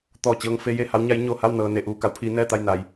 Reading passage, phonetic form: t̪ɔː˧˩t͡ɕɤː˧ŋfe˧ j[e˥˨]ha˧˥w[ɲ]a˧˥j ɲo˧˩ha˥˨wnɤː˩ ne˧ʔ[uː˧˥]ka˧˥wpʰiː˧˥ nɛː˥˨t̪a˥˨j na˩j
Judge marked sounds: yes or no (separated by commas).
yes, yes, no